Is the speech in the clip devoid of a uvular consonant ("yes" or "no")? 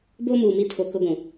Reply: yes